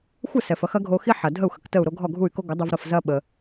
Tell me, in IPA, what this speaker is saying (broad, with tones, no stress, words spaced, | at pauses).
xʷə˥˩sɛ˩fɐ˧x ɐ˩˥ɡʱo˧xi˥ ħɐ˩ dʱə˥˩u̯xə˩k tə˥˩u̯ɾo˥ ɡʱɔ˥˩ɡʱu˥˩y̯ko˥ ɡʷə˩˥dˤu˧vɾɐ˥˩fzɐ˥ ɓə˧